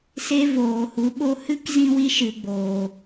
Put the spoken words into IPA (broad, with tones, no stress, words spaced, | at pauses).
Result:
se˦voː˨hu˨˦ɓo˦ hɨ˦kzĩ˧ wi˦ʃɨ˨ɡ͡boː˨